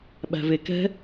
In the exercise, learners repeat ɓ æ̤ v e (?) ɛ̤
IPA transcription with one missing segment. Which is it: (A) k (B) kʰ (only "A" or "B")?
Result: A